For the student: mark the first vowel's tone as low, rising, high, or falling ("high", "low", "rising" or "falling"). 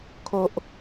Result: high